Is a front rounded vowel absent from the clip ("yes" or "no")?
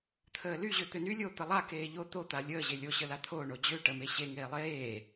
no